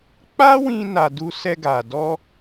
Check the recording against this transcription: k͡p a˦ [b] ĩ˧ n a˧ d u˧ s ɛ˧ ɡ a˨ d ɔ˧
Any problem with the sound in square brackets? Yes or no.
yes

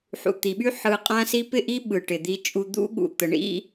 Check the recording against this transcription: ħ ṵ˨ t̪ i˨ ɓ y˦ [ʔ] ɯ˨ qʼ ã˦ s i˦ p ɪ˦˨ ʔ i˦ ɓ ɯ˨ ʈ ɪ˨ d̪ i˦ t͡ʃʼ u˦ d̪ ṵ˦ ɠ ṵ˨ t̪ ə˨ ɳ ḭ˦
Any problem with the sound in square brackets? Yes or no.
yes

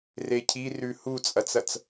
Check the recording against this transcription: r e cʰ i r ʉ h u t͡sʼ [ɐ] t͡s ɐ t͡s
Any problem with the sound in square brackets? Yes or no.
no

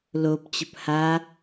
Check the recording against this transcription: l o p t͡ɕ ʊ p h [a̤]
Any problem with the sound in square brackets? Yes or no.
yes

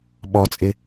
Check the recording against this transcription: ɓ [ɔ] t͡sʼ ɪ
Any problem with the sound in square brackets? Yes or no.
no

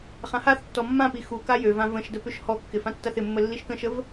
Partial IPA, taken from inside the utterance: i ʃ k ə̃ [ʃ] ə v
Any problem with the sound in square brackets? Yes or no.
no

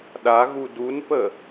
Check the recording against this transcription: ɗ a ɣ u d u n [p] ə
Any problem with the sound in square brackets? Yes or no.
no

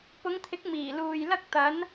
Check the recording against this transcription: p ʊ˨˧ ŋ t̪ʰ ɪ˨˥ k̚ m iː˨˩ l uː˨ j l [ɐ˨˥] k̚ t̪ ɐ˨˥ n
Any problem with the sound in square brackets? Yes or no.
yes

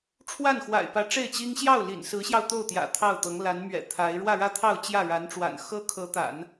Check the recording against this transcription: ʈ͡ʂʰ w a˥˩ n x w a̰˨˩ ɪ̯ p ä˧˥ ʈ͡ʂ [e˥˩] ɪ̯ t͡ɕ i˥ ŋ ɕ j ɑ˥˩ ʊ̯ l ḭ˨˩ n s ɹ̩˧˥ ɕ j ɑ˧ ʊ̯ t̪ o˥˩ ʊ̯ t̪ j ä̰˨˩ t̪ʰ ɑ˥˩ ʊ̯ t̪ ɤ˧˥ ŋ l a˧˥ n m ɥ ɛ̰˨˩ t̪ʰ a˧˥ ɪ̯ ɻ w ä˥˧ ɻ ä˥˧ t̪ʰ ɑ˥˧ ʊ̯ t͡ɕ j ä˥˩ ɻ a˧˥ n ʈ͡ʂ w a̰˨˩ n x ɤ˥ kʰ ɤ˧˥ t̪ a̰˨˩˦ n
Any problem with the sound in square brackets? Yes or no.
no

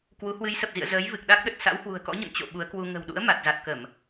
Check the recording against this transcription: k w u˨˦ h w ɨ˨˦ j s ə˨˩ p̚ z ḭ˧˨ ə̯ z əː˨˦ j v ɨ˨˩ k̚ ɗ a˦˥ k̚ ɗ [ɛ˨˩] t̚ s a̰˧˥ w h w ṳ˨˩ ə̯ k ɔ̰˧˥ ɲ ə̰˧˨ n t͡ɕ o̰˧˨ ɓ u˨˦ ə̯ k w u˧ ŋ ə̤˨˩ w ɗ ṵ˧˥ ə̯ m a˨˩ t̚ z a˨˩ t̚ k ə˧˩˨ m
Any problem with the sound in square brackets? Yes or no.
yes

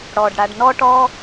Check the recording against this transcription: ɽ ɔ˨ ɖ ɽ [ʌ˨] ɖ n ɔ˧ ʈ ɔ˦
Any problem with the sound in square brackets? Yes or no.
yes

